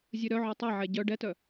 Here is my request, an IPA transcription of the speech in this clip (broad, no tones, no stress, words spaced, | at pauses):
zʲɨɾœʕœ tˤɛʕɛ ɟœ ɖɛtœ